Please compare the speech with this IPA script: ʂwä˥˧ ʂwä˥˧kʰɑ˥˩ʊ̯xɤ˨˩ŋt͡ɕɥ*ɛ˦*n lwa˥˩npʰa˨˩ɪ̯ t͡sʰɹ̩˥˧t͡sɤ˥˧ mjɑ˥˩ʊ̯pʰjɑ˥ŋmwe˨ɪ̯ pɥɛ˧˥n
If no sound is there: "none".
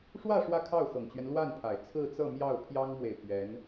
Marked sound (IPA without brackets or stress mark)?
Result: ɛ˦